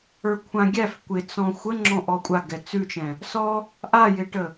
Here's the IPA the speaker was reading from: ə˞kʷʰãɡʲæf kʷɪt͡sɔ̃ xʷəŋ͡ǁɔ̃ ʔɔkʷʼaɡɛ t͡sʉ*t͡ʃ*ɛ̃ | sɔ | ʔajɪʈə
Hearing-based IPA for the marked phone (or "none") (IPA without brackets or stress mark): t͡ʃ